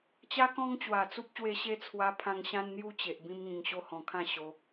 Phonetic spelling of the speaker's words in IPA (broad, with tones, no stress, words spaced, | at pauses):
t͡ɕa˦kɔ̃˦ŋ t͡ɕwa˨˩t͡su˦p̚ɕwe˧ ɕe˦t͡sʰwa˧pʰã˧ŋ ɕã˦nn̪ju˥˧t͡ɕe˨ʔ bĩ˧mŋĩ˨˩ŋɕo˧ hɔ̃˨˩kʰã˥˧ɕo˧